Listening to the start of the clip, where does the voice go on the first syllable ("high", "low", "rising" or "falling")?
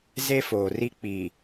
high